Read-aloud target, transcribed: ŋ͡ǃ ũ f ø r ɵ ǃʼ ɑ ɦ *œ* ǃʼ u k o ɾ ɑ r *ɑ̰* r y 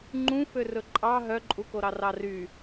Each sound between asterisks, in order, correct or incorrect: correct, incorrect

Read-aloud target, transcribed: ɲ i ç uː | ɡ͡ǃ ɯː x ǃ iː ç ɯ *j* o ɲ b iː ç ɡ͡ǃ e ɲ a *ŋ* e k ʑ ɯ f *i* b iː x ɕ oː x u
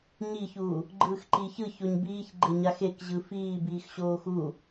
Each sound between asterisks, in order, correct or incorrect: incorrect, incorrect, incorrect

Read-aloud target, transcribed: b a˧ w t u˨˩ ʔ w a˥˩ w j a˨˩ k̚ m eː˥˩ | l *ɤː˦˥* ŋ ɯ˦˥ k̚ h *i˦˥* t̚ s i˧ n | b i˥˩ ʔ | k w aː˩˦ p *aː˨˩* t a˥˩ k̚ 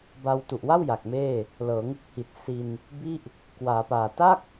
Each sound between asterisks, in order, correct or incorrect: incorrect, incorrect, correct

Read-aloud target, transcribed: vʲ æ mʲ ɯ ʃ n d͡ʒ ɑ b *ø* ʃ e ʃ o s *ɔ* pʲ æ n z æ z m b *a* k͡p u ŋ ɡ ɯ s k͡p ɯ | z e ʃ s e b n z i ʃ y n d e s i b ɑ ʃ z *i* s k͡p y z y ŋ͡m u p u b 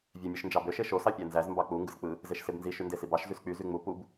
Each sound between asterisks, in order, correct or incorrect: correct, incorrect, incorrect, incorrect

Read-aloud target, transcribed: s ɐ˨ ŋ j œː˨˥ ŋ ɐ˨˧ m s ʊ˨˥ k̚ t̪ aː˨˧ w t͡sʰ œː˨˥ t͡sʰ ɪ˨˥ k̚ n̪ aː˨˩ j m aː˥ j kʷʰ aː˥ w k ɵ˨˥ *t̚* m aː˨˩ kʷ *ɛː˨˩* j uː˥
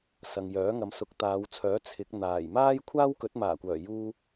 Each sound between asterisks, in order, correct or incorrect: correct, incorrect

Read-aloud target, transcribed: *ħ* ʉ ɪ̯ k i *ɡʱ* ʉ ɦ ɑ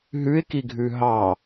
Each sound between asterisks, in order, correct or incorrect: incorrect, correct

